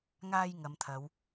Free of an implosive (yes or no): yes